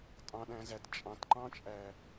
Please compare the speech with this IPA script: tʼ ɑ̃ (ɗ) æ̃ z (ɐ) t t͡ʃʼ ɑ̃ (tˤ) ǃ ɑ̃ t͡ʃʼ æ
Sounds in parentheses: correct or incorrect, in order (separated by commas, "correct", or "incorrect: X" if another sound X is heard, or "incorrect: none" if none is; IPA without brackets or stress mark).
correct, incorrect: æ, incorrect: t